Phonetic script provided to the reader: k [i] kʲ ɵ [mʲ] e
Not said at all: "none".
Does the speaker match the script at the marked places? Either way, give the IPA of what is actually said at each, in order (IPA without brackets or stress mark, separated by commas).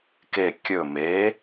e, m